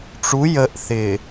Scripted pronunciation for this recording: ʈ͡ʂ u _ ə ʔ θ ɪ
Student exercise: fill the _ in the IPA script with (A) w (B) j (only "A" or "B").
B